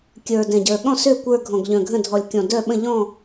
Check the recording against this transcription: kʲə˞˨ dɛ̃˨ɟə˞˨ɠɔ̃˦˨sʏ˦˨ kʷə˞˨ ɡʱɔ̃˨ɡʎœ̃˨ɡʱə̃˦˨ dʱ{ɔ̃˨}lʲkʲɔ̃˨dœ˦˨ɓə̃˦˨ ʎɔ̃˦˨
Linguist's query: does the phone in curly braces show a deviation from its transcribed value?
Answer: yes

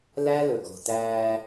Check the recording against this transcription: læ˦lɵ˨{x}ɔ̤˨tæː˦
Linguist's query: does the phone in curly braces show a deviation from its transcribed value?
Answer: yes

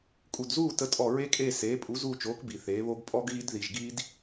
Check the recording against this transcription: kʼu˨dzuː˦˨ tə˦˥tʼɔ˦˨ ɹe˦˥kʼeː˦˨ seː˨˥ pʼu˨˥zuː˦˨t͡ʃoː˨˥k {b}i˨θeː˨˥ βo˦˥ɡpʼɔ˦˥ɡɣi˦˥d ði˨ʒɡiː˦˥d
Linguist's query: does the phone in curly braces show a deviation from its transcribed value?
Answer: no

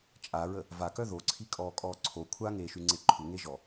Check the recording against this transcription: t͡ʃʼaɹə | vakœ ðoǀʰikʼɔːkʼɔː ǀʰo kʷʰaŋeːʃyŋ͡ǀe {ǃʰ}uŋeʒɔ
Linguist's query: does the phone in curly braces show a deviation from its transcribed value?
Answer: no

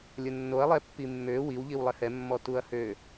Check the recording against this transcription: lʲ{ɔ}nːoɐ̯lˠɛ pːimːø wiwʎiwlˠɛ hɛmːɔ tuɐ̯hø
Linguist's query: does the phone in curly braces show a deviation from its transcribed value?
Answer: yes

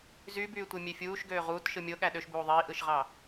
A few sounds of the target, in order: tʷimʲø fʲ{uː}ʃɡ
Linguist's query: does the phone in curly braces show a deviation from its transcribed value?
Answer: no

